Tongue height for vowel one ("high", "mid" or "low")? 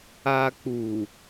low